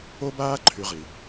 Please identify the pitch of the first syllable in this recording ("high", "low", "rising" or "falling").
high